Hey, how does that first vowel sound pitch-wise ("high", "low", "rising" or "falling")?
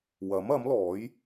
rising